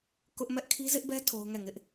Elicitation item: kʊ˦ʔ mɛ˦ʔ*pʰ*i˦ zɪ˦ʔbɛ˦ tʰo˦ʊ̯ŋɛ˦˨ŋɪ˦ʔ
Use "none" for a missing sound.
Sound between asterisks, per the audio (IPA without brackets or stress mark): kʰ